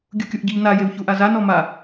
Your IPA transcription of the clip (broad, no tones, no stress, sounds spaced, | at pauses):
ɡʲ u kʲ u ʔ ɟ ɨ ʎ n a j e w ç u ʔ a z a n ɔ m a